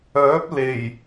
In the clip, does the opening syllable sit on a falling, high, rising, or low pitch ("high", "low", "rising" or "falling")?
rising